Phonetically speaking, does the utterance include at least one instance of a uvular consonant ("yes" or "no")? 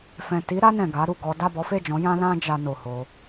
no